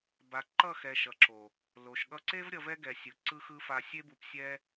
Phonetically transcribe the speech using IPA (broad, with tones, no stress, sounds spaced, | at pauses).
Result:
b a˨ ǃ ʌ˦˨ x ɛ˨ ʃ ʌ˨ ǁ o˨ | l o˨ ʃ ɠ ʌ˧ ǀ e˦ v ɾʲ ʌ˧ v ɛ˦ ɡ ɛ˨ sʲ ɯ˨ ǀ ɯ˧ x ɯ˧ f a˧ sʲ e˦ b u˧ p sʲ ɛ˦